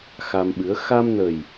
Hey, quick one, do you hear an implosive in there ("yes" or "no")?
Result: yes